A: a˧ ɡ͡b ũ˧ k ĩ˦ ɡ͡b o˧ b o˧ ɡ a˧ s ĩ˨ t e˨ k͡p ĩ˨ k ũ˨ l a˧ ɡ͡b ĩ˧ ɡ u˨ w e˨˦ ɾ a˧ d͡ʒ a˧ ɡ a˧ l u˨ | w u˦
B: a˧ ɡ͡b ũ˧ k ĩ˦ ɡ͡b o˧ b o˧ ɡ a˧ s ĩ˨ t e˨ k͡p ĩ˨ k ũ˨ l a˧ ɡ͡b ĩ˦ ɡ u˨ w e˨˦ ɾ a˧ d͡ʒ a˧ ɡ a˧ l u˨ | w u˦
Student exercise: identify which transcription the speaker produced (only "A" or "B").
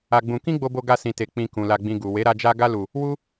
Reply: A